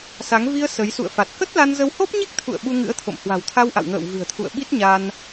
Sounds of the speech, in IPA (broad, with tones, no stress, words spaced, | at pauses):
sa˨˦ŋ vi˧ə̯ sə˨˦j sṵ˧˨ə̯fa˨˩t̚ kə˦˥t̚la˧nzə˧w ho˦˥p̚ɲi˦˥k̚t̪ʰṵ˧˨ə̯ ɓu˧ŋɨ̰˧˥ə̯t̪ʰo̰˧˨m hwa̤˨˩wt̪ʰa˧wʔa̰˧˨w ŋə̰ː˧˨w vɨ̤˨˩ə̯t̪ʰṵ˧˨ə̯ ɓi˦˥t̚ ɲa˧n